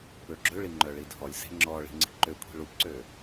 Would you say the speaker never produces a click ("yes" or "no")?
no